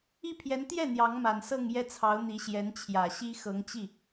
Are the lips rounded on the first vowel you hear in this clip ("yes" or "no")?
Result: no